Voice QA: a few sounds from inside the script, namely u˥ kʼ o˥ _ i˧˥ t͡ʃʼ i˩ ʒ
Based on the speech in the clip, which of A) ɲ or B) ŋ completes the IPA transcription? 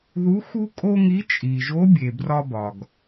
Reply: B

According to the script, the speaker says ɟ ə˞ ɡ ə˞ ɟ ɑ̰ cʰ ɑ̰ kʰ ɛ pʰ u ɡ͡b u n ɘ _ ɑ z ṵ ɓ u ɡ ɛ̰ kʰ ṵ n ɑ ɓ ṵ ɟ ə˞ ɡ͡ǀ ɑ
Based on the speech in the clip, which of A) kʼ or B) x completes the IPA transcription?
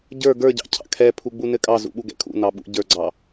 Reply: A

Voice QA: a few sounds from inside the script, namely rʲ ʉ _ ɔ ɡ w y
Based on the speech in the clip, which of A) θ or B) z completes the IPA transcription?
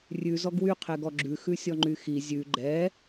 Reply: B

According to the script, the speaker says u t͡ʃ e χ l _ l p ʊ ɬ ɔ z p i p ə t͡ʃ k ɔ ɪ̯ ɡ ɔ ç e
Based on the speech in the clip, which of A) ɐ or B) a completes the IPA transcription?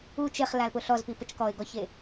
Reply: B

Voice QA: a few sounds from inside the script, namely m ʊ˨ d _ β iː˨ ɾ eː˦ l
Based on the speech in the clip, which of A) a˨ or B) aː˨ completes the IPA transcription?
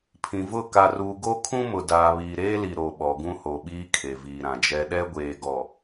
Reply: B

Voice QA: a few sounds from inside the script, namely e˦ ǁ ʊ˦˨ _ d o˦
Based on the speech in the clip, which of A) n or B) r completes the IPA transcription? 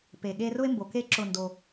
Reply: A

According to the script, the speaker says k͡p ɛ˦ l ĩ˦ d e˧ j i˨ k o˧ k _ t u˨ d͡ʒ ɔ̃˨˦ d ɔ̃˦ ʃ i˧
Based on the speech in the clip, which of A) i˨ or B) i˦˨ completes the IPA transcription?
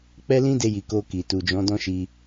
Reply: A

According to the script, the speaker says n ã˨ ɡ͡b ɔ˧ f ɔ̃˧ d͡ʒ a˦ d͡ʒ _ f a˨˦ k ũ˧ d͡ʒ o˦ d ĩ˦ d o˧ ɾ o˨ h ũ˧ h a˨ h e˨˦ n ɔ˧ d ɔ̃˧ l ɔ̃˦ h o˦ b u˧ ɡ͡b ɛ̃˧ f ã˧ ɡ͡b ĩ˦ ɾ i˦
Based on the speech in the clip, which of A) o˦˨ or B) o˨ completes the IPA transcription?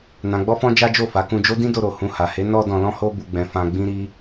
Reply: A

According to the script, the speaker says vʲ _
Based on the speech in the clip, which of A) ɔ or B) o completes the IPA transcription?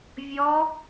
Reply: A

